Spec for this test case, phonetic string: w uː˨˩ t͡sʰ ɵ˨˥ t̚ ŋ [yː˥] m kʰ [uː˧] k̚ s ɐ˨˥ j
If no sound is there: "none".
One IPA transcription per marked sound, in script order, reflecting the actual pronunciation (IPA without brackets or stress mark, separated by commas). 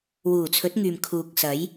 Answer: yː˨, uː˨